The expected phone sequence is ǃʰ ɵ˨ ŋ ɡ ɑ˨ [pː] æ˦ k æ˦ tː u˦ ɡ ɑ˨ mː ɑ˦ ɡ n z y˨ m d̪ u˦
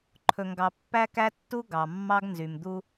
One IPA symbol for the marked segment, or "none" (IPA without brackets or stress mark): pː